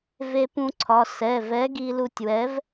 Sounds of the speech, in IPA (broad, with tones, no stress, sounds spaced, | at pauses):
v e˧ p ũ˧ ǀʰ ɒ˩˧˩ s ɛ˩˧˩ v ɛ˨˥ ɡ i˧ l u˧ tʲ w ɛ˨˥ v